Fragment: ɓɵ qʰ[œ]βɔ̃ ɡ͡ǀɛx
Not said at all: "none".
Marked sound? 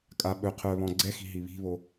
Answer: œ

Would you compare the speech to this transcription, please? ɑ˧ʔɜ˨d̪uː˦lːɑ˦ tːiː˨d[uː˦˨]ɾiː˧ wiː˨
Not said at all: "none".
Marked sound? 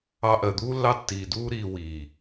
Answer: uː˦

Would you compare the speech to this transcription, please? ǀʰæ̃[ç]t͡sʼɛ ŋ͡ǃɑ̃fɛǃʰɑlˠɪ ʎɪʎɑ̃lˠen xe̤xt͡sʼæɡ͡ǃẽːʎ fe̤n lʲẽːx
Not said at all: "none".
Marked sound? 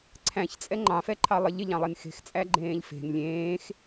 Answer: ç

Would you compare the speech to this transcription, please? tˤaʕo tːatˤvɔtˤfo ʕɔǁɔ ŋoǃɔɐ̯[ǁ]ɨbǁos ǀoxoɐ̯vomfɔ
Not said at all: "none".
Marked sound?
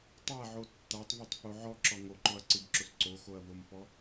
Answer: ǀ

